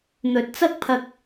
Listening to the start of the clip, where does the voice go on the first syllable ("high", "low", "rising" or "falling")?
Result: low